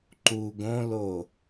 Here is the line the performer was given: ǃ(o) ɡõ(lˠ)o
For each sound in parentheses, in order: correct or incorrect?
incorrect, incorrect

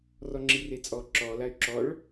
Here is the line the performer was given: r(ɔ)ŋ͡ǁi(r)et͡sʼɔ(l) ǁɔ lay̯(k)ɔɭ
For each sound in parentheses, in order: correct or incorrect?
correct, correct, incorrect, incorrect

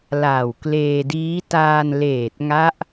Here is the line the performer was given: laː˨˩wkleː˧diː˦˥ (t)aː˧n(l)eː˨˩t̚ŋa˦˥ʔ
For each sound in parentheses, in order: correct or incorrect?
correct, correct

